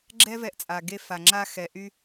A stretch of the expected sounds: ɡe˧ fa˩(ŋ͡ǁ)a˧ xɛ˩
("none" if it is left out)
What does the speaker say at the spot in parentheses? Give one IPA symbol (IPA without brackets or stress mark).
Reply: ŋ͡ǁ